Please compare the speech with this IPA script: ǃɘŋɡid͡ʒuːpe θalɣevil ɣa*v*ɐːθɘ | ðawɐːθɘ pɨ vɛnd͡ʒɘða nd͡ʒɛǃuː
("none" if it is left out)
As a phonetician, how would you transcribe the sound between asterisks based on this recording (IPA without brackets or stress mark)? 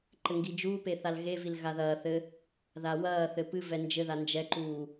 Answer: ð